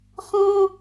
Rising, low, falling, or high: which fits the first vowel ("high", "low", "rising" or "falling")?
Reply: high